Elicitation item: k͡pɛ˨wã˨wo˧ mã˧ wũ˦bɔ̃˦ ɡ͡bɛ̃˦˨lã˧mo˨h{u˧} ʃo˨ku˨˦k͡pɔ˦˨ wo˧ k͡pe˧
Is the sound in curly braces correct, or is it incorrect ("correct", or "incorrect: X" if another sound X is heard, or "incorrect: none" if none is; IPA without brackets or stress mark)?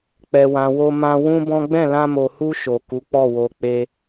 correct